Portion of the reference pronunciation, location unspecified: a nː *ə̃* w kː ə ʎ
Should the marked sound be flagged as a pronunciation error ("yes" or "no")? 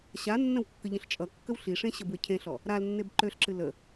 no